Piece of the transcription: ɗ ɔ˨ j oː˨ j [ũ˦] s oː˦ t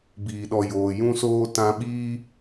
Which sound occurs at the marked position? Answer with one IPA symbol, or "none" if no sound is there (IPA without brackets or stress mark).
ũ˦